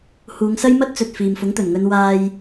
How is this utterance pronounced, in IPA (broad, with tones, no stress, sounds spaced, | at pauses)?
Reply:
h uː˨˧ ŋ s ɐ˥ j m ɐ˥ t̚ t͡s ɵ˨ t̚ f iː˨ m f ʊ˨˥ ŋ t̪ ɵ˨˩ n ŋ ɵ˧ n w aː˨ j